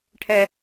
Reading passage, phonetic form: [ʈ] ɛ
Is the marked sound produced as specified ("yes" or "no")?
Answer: no